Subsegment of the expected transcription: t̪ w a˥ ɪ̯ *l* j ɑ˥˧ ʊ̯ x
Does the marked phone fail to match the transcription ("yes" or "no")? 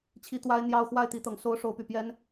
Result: yes